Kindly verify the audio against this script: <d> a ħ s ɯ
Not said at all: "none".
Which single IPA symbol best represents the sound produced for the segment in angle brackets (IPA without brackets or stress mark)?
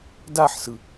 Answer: d